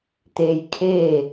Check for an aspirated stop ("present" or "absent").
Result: present